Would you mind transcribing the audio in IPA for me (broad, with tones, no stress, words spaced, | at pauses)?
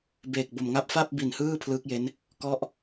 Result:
beː˨˩k̚bo˨˩mŋa˥˩p̚ fa˥˩p̚ bi˨˩nhɯː˥˩ pʰlɯː˦˥k̚je˦˥n | kɔ˦˥ʔ